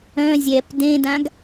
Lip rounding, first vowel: rounded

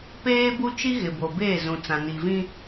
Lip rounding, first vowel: unrounded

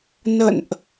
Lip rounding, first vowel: unrounded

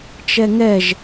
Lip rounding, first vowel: unrounded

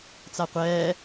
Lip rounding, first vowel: unrounded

